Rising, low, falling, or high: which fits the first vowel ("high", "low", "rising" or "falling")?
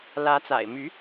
rising